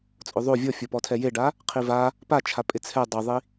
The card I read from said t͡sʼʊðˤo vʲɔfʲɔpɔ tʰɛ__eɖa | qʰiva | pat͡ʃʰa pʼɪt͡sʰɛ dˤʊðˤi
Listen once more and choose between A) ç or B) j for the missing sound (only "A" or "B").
B